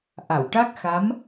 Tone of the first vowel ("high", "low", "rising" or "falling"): low